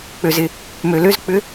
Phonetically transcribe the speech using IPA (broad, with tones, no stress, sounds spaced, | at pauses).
k͡p ø˩ z ɪ˩ | m ø˩ l ø˦˥ z k͡p ʏ˧˥˧